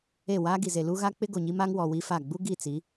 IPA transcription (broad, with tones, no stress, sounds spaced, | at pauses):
e˦˨ w aː˦ ɡ i˨ z e˨ l u˦ ɣ a˦ k͡p ɪ˦ ɡ o˨ ɲ i˦ m a˦ ŋ w ɔ˨ w i˦ f a˦˨ ɡ͡b u˦ ɡ i˦˨ t͡s i˨˦